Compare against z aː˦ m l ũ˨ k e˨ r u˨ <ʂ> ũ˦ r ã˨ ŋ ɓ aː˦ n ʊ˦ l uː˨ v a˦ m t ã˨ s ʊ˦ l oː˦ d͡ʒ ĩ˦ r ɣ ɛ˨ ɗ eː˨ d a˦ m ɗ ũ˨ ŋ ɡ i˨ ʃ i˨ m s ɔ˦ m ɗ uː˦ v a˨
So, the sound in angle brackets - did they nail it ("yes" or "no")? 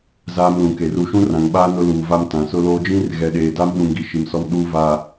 no